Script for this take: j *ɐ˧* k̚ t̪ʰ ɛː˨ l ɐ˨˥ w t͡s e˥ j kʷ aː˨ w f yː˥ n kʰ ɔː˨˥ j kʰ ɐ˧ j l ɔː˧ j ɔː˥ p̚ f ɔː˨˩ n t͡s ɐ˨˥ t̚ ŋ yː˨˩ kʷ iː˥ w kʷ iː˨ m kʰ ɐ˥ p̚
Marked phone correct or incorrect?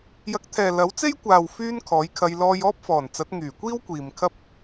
correct